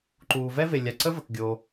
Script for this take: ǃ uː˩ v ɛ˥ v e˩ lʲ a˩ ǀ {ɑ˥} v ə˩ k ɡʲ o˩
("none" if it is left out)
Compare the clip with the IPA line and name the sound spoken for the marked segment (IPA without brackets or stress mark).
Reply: ə˥